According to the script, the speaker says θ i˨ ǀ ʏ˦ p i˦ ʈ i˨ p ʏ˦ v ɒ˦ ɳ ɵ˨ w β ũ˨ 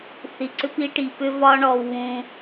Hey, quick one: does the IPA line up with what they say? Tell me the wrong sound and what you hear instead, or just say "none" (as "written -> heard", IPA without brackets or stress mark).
ɵ˨ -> ɔ˨